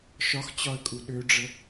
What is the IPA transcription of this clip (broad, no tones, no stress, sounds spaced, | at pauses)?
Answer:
ʃ ɒ x t͡ɕ ɒ ə̯ kʼ u ɗ ø ɖ͡ʐ ə